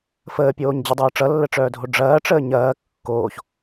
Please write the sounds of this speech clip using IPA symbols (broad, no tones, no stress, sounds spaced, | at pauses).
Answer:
f əː pʲ oː ɲ d͡ʑ ʌ dˤ ɐː ʈ͡ʂ ʌ lː ə ʈ͡ʂ œː dʱ o ɖ͡ʐ ɐː ʈ͡ʂ əː ɲ ɐː kː oː ç